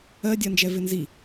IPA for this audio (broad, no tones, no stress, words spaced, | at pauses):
ɜ dʲɜnd͡ʒɛvɪnzi